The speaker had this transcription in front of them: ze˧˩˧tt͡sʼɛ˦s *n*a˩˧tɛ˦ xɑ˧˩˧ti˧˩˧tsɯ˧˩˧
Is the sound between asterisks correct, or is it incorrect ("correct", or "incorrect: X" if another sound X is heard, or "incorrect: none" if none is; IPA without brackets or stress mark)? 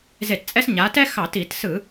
incorrect: ɲ